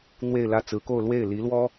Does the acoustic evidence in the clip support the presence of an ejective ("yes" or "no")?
no